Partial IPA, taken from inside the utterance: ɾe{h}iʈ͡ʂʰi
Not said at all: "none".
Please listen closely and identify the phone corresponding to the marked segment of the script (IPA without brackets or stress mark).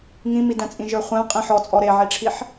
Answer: ʕ